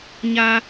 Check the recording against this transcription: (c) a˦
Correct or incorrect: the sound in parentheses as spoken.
incorrect: ɲ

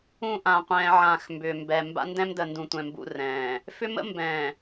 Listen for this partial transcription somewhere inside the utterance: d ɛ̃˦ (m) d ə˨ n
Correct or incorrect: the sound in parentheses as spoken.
correct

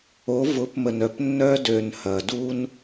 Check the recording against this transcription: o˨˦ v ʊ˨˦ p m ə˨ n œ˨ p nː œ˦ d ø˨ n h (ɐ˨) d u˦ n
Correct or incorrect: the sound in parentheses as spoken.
correct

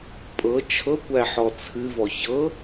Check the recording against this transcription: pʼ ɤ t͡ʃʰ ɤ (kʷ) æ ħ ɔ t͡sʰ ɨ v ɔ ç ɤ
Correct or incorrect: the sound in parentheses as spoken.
correct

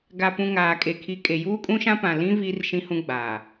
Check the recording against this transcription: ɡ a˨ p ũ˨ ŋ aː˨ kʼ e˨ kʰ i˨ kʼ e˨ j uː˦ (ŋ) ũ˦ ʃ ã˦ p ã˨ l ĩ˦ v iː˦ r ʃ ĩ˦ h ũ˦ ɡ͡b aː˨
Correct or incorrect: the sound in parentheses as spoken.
incorrect: kʼ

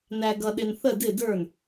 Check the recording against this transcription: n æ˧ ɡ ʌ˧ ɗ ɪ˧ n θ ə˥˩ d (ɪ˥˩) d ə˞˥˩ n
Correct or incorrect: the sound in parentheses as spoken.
correct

